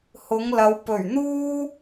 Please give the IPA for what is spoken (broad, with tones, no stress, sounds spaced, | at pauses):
h ʊ˨˧ ŋ l ɐ˨˧ w p ɵ˨˩ ɥ n̪ uː˥